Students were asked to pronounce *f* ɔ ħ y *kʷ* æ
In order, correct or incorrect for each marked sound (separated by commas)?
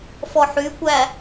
correct, correct